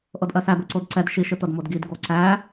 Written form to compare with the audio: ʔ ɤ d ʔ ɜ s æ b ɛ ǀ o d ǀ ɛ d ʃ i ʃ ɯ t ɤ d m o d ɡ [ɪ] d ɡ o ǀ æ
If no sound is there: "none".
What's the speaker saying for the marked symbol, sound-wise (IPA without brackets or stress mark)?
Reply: i